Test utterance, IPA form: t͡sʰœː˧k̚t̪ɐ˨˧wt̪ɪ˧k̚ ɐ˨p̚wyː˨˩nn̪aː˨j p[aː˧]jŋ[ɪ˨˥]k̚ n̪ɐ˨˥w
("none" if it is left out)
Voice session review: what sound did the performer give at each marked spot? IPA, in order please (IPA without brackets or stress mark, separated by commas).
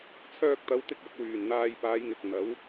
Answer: aː˨˧, ɪ˨